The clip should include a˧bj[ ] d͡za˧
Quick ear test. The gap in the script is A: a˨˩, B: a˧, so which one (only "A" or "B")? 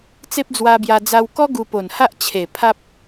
B